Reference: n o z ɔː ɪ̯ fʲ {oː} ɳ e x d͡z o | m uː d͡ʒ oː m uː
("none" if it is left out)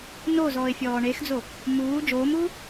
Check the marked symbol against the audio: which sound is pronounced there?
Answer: ɔː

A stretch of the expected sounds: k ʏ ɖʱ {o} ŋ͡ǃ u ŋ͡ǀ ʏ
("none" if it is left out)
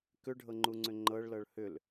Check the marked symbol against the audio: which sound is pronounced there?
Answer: ɤ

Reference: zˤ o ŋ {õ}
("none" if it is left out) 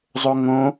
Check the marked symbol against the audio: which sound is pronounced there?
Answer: õ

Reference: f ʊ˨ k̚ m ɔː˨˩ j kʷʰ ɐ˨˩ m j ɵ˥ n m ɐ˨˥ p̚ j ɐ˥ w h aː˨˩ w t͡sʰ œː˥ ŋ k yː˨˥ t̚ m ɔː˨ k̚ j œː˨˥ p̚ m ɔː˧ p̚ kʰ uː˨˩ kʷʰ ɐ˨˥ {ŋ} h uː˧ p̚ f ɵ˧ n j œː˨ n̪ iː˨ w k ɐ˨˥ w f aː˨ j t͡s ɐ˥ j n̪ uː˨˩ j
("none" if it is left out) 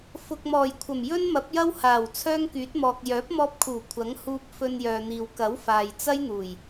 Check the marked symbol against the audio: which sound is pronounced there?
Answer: ŋ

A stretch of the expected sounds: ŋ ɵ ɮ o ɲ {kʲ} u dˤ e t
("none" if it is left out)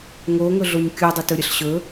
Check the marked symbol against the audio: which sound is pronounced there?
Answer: kʲ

